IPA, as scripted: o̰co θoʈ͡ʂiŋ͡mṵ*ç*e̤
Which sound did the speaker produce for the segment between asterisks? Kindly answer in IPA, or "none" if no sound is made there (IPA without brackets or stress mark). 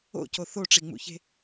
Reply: ç